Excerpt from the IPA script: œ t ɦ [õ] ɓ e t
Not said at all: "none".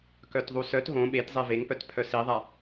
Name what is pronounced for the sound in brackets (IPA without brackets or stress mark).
õ